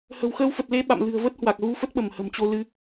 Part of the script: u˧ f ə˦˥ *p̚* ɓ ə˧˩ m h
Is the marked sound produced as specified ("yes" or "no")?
no